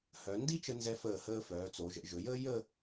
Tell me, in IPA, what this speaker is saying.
h œ˩˧ n d i˥ t͡ʃ ə˧ n z ɛ˧ f əː˧˩ h əː˧ f œː˩˧ t͡s o˩˧ ʒ ə̰˩˧ ʒ ɵ˩˧ j əː˥ j ə˥˧

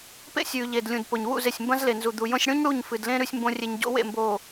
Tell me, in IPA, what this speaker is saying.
p ḛ˦ sʲ ʉː˨ ʎ e˨ d lʲ ũ˨ d p o˨ ɲ w ṵ˦˨ z e˨ sʲ m b ɐ̃˦ z l e˨ n z u˨ d̪ u˨ j õ˦ sʲ ɽ ũ˦ ɲ ɽ u˦˨ ɲ f ɨ˨ d l ẽ˦ ɾ ʉ˦ sʲ m b õ˦ rʲ e˦ ɲ ɟ o̰˦ w ḛ˦˨ m b oː˨

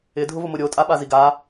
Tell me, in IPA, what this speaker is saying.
ɪ dʱ ʊ v ʊ m ʊ ɾʲ o tʼ a ɓ a z i ɡ a

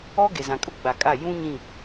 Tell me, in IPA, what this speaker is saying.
ɔ˦ ɡ e˨ z ã˨ kʼ ʊ˦ ɡ͡b a˨ kʼ a˦˨ j ũ˦ ɲ ĩ˦˨

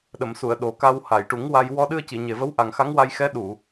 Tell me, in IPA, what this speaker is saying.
ɗ ə˨˩˨ m s u˨˩˨ ə̯ ɗ o˨˩ k a˧ w h a˨˩˨ j ʈ u˨˩˦ ŋ w a˧ j w ɔ˧ ɗ ɨ˧ ə̯ c i˨˩˨ ɲ e˨˩ v ə˧˥ w ʔ a˨˩ ŋ x a˧˥ ŋ w a˧ j x ɛ˧˥ ɗ u˨˩˨

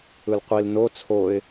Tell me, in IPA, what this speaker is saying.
ɯ l qʷ i l n o t͡sʰ o ɪ̯

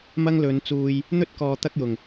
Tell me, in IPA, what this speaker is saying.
m ɐ˥ ŋ l ɵ˨˧ n t͡s uː˧ j | n̪ ɵ˥ t̚ k ɔː˨ t̪ ɐ˥ k̚ j ʊ˨˩ ŋ

